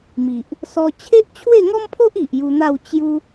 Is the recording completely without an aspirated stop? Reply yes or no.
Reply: no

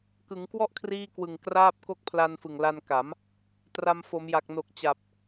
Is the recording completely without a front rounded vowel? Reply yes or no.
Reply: yes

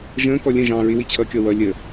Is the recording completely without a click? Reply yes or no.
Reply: yes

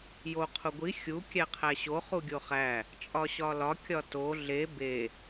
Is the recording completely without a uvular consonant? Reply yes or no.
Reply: no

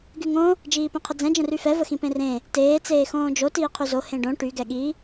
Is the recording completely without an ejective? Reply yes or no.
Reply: yes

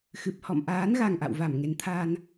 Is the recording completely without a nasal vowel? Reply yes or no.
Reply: yes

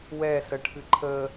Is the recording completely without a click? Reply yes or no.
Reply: no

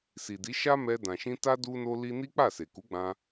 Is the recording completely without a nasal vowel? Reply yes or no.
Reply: no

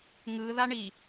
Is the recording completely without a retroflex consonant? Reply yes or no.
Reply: no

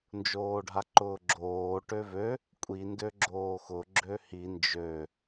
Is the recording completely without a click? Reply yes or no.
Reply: no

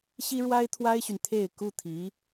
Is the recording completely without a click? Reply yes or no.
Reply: yes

